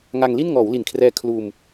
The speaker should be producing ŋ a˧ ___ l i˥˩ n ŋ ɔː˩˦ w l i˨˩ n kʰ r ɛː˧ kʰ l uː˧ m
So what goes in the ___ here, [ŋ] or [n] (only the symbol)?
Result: ŋ